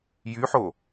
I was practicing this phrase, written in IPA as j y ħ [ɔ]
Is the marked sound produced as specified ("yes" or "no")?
no